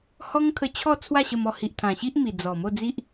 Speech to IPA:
h ɔ˦ ŋ kʰ ə˧ t͡ɕʰ ɔ˥˧ t͡sʰ w a˥˧ ɕ ə˧ m ɔ˧ h i˨ ʔ t̪ʰ ã˨˩ ɕ i˦ ʔ m i˨˩ d͡z ɔ˨˩ m o˥˧ d͡z i˦ ʔ

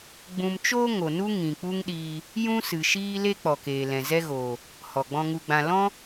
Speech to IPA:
ɡ͡b ũ˨ m t͡ʃ oː˧ ŋ o˨ n u˦ ŋ ĩ˨ k͡p u˦ ŋ ɗ iː˧ | j ũ˦ s ɨ˨ ʃ iː˦ l e˦ k͡p ɔ˨ k eː˨ l ɛ̃˨ z ɛ˦ ɣ oː˨ | h ɔ˨ ɡ͡b ɔ̃˧ ŋ u˧ ɡ͡b ã˧ l ɔ̃˦

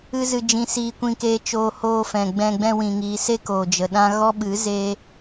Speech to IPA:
ɨ˦ z ɨ˧ d͡ʒ ĩ˧ s iː˧ kʷ ĩ˧ k eː˧ t͡ʃ oː˧ h oː˧ f ɛ̃˨ ɡ͡b ɛ̃˧ ɡ͡b ɛ̃˧ w ĩ˨ ŋ iː˨ s e˦ k oː˨ d͡ʒ ə˨ ɗ ã˦ ɣ ɔ˦ ɓ ɨ˨˦ z eː˦

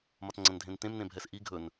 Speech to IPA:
m ɒ t ŋ͡ǀ ɐ̃ n dʱ ẽ n t ẽ m n ẽ bʱ ɛ s ʔ i ɡʱ ɵ n

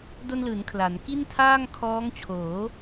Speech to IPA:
d o˧ n l ɯː˩˦ n kʰ l a˩˦ n k i˥˩ n tʰ aː˥˩ ŋ kʰ ɔː˦˥ ŋ t͡ɕʰ oː˩˦

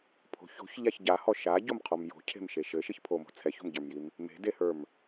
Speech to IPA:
pʰ o̤ ç o̤ ç ʎ a ç ɟ a h ɔ ʃ a ɟ o m qʰ ɔ m j o̤ cʰ e̤ m ʃ e ʃ ɘ ʃ i ç pʰ o m o̤ t͡sʰ ɛ ç o̤ m ɟ ə˞ m j i m | m e̤ d e h ə˞ m

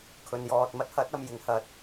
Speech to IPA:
kʰ ɵ˨ n j ɔː˨ t̚ m ɐ˥ t̚ h ɐ˨˥ t̚ ɐ˨ m j ɪ˨˥ ŋ h ɐ˨ t̚

